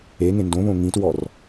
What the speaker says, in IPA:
e ŋ ẽ n d õ β õ ŋ ĩ t w ɔ r

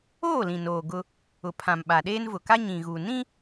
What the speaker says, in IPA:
oː˦˨ l ĩ˨ n oː˨ ɡ ʊ˦ | ʊ˨ pʰ ã˨ m ɓ a˨ ɗ eː˦ n v ʊ˨ k a˦ ɲ ĩ˨ ɣ u˨ n ĩ˦

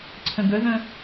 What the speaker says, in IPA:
ǀʰ ə̃ ɡ ə ð ə̃

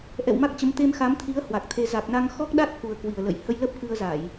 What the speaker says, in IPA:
ʔ ɛ̰˧˨ w m a˦˥ k̚ t͡ɕ ə˨˦ m t̪ e˧ m x a˨˦ m t̪ʰ i˨˦ ə̯ h w a˨˩ k̚ t̪ʰ e˧ z a˨˩ k̚ n a˧ ŋ x ɔ˦˥ k̚ ɗ a˦˥ t̚ k u˨˩ ə̯ k w i˨˩ ə̯ l ə̰˧˨ j h ə˧ j l ə˦˥ p̚ k ɨ˧ ə̯ z a˧˩˨ j

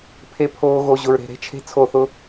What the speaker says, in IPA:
pʰ e˦ pʰ oː˦ ɣ o˧ ʑ ʊ˧ ɹ ɾ e̤˧ ɾ e̤˦ t͡ʃʰ e̤˦ t͡sʰ o˦˨ θ ʊ˦

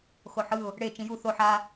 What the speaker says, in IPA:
x o ħ ɯ ʊ̯ | ɽ e t͡ʃ ĩ j u θ o ħ a

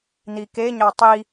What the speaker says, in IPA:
n̪ i k e ɲ ɑ tˤ i

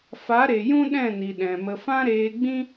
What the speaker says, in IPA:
f a˨˦ ɾ e˨ j ũ˦ ɗ ɛ̃˦˨ n i˨ ɗ ɛ̃˨ m ə˧ f ã˦ ɾ eː˧ ɡ͡b ĩ˦

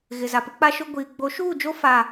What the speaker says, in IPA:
ɣ ɪ˨ z a˨ p ɪ˦ k͡p a˦ ʃ ʊ˦ ɡʷ iː˨ ɡ͡b o˨˦ ʃ uː˦˨ d͡ʒ o˦ f a˦˨

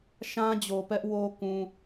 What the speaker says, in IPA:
ʃ ã˦ d͡ʑ o˨ p ɛ˦ ʔ w o˦ k ũ˦

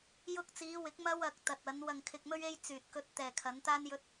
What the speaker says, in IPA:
j ʊ˧ k̚ t͡s iː˨˧ w ɪ˨˥ k̚ m ɐ˧ w ɐ˨ k̚ t̪ ɐ˨ t̚ ɐ˨˧ n w ɐ˨ ŋ kʰ ɪ˨ k̚ m ɵ˧ ɥ e˧ j t͡s yː˨ t̚ k ɵ˧ t̚ t̪ ɛː˨ kʰ ɐ˨˧ n t̪ aː˥ n j ɵ˥ t̚

